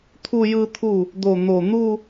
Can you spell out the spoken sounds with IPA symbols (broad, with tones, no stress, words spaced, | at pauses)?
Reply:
t̪ʰu˥˧jɯ˥˧t̪ʰu˥˩ | d̪o˧˩n̪o˧˩ n̪u˥˧